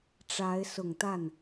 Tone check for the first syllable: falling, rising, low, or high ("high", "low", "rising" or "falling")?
rising